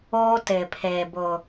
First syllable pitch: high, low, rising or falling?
high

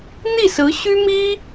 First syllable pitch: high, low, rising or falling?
falling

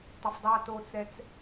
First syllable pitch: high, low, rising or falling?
low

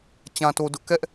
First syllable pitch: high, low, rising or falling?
low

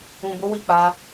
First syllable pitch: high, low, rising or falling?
low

